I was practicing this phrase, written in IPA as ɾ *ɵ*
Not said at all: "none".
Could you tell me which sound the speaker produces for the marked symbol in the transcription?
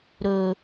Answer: ɵ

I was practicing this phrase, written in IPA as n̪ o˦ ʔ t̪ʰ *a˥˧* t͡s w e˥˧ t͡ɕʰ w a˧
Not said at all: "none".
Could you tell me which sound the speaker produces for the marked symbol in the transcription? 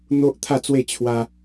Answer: a˥˧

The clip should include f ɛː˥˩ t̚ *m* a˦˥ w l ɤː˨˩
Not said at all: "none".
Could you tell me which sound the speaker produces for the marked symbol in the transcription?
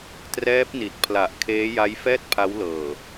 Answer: pʰ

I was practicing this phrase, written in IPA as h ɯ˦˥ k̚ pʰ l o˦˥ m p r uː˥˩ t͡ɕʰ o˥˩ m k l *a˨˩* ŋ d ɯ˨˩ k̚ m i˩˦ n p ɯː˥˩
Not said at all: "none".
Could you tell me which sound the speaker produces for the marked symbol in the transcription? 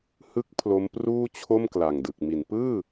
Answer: a˨˩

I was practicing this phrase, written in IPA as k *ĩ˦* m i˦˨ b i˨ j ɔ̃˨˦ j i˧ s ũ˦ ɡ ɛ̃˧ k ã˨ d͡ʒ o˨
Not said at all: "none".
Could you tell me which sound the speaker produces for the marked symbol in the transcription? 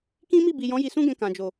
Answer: ĩ˦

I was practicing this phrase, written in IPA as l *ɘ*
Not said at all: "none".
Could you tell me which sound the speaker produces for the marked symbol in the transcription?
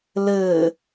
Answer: ɘ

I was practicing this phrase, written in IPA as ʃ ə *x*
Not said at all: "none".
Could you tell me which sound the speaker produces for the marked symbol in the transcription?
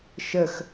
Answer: x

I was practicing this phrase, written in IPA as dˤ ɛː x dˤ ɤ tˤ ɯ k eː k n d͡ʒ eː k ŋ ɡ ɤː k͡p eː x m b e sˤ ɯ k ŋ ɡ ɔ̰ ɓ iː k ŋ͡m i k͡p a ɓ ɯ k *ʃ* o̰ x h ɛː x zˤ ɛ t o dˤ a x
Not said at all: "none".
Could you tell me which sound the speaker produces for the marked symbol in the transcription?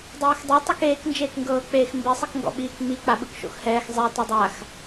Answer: ʃ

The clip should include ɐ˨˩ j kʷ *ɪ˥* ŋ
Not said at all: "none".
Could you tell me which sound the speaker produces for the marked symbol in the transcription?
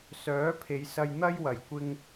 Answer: ɪ˧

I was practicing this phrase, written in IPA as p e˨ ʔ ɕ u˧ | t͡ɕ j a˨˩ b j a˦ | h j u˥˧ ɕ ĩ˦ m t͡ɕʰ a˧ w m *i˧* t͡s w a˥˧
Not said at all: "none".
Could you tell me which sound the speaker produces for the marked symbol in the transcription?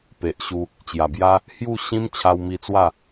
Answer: i˧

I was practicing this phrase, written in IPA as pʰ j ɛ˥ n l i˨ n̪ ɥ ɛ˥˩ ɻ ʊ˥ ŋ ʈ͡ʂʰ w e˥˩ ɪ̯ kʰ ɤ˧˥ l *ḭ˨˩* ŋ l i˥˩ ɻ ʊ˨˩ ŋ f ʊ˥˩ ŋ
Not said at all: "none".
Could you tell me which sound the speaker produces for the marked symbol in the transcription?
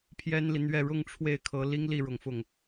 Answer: i˥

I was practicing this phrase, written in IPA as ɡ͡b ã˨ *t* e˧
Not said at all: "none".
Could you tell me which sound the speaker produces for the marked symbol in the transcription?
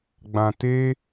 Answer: t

